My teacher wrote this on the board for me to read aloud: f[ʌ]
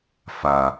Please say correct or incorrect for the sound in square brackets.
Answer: incorrect